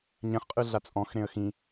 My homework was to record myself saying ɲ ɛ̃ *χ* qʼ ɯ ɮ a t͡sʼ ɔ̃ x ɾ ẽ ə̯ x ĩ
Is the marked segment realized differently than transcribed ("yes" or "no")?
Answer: no